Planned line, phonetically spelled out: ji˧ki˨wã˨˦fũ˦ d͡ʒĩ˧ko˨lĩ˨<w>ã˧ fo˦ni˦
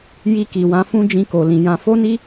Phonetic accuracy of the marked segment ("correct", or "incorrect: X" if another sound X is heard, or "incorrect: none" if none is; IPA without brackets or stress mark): incorrect: j